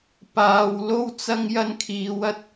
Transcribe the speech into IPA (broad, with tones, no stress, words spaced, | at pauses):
paː˧w lo˥wt͡sɐ˥ŋ jɐ˥nkʰiː˧wɐ˥t̚